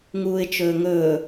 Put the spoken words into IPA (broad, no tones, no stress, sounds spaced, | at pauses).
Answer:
ŋ uː ɪ̯ t͡ʃ ɵː ŋ ɵː